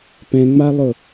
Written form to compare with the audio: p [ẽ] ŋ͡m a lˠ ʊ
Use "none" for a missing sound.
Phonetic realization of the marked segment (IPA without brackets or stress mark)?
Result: ɛ̃